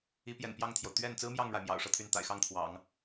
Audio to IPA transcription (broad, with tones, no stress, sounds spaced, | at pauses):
i˧˥ p j ɛ̰˨˩ n p j ɑ˥˩ ŋ t̪ʰ j o˩ ʊ̯ t̪ ɥ ɛ˥˩ n t͡s ɹ̩˥ m j ɑ˥˩ ŋ ɻ a˩ ɪ̯ m j ɑ̰˨˩ ʊ̯ ʂ ɤ˥˧ t̪ʰ y˥˩ n t̪ a̰˨˩ ɪ̯ x ɑ˥˩ ŋ t̪ʰ w ɑ̰˨˩˦ ŋ